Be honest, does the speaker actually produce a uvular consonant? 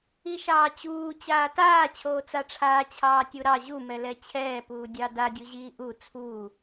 no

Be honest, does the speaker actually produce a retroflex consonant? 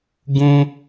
no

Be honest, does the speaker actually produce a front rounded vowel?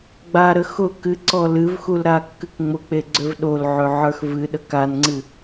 yes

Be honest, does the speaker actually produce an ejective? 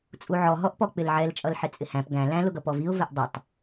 yes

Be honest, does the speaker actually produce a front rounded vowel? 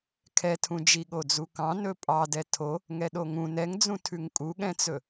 no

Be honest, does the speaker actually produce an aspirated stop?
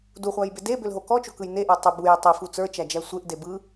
no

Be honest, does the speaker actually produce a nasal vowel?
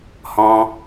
yes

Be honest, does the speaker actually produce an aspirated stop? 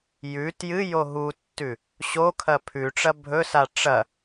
yes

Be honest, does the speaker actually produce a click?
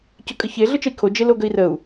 no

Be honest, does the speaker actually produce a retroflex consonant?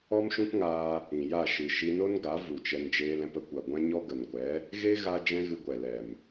no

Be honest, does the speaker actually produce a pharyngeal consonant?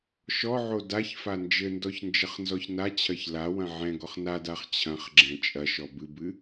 yes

